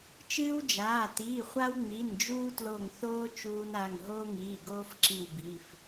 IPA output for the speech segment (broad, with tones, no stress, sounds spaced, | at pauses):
t͡ʃ ɨː˦ w d͡ʒ aː˩˧˩ t iː˩˧˩ χʷ a˦ w ŋ͡m i˩˧˩ n d͡ʒ uː˦ t l o˧˩ ŋ θ oː˦ t͡ʃ uː˦ n a˩˧˩ ŋ ɦ oː˦ ŋ iː˩˧˩ ɡ oː˦ f ǁ i˧˩ w b i˩˧˩ f